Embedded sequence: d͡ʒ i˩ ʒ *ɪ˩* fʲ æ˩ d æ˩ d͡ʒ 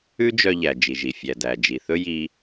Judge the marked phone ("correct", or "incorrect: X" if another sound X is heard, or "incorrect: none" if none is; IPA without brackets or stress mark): incorrect: i˩